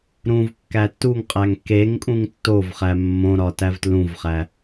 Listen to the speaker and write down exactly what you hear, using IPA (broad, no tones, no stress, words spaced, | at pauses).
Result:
ɾũvkːæ tːuŋqʼæŋ keŋkʼũŋ tːovχæ mːõ ɾɒtævtlũvχæ